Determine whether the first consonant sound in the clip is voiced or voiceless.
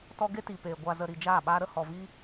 voiceless